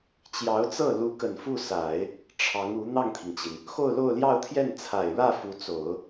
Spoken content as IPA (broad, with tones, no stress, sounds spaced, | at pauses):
t͡ɕ j ɑ˧˥ ʊ̯ t͡s ɤ˥˩ l u˧˥ k ə˨˩ n f u˥˩ s a˨˩˦ ɪ̯ | ʈ͡ʂʰ ɑ˧˥ ŋ u˧˥ n̪ ɑ˥˩ ŋ t̪ʰ i˩ ŋ t͡ɕ i˩ n | x o˥˧ ʊ̯ l o˥˧ ʊ̯ l j ɑ˥˧ ʊ̯ t̪ʰ j ɛ˥˩ n t͡sʰ a˨˩ ɪ̯ ɻ ä˥˩ f u˧˥ t͡s o˨˩˦ ʊ̯